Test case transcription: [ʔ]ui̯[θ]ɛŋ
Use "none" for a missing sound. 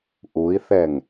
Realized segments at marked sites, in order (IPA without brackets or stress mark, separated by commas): ʔ, θ